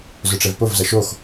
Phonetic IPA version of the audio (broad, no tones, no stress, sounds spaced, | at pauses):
z ʊ ʈ͡ʂ ɛ v p o v z ɐ ʃ o x